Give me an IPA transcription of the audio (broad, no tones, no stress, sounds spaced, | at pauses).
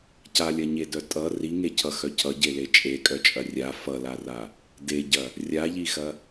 c a lʲ ɐ ɲ e d œ tʼ ʌ r i ŋ e cʰ ʌ x œ cʰ ʌ ɟ e l e t͡ʃʼ e kʼ œ t͡ʃʼ ɐ rʲ a f ʌ l a r a | d e ɟ ɐ | rʲ a ʎ i x ɐ